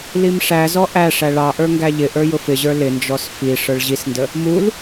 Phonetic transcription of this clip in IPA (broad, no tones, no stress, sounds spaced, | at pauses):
l i m ʂ æ z ɔ ʔ æ ʂ æ ɭ ɑ ʔ ə˞ ŋ ɡ æ ʎ ɪ ʔ ə˞ j ʊ f ɪ ʑ ə˞ l ɪ n d͡ʒ ɔ s f i ʂ ə˞ ɭ ʑ i s n d ə | m u l